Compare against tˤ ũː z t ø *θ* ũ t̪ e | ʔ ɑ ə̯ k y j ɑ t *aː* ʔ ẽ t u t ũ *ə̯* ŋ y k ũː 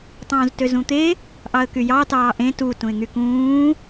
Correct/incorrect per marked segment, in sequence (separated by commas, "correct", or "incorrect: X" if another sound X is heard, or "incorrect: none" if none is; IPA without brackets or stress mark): incorrect: z, incorrect: ɑː, incorrect: ɪ̯